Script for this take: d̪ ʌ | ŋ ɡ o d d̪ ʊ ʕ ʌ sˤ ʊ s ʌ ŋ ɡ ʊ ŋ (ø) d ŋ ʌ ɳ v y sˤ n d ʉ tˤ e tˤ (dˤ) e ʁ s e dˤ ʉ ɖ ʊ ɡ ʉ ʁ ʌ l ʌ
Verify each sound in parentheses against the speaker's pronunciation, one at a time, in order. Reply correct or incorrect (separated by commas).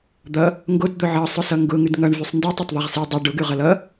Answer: incorrect, incorrect